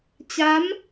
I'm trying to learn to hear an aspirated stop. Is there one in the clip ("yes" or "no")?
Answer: no